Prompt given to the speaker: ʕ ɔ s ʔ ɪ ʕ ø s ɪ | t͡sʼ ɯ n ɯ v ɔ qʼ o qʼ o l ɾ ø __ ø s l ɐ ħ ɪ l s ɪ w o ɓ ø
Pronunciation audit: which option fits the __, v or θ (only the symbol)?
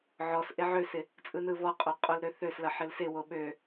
θ